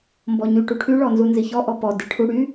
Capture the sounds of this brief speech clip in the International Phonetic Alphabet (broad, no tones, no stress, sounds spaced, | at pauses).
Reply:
m b ɔ ɲ y ʈ u ʈʰ y ɭ ɔ n z u n z i ç ɔ ʔ ɔ p ɔ d i ʈʰ u ɽ y